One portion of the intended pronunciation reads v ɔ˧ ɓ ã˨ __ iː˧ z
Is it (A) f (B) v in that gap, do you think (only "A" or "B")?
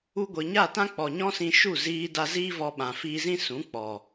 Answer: A